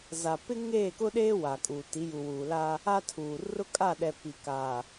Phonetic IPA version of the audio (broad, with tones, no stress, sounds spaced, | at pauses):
z a˨ p ɪ˦ ŋ eː˦˨ k ʊ˦ ɗ eː˦ w a˨ kʼ uː˨ t i˨˦ j u˨ w uː˨ l a˦ | a˦ tʰ uː˨ r ʊ˦ kʼ a˦˨ ɗ ɛ˨ p i˨ k aː˨